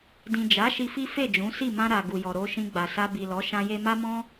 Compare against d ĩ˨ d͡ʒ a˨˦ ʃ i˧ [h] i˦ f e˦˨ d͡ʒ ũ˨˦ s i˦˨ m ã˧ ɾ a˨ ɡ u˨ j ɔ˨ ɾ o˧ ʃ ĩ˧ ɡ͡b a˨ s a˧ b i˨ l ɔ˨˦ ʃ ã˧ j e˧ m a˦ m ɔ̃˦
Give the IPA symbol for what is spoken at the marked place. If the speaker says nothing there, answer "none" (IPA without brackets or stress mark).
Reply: f